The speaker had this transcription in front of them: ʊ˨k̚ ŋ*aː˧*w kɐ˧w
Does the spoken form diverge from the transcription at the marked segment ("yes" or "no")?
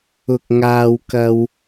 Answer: no